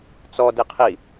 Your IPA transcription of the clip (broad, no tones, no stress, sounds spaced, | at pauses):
t͡s ɔ d i qʰ i